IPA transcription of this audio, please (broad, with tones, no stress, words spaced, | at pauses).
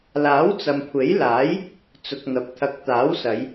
laː˨˥wt͡sɐ˨mkʷʰe˨˥jlaː˨˥j | t͡sʊ˨k̚n̪ɐ˨p̚t̪ʰɐ˨˥k̚ t̪aː˨˥wsɐ˨˧j